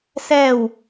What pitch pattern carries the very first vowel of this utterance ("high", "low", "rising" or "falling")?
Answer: falling